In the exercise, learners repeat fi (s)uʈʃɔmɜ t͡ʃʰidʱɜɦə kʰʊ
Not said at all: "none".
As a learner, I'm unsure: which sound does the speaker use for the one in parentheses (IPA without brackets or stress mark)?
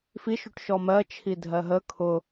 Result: ʃ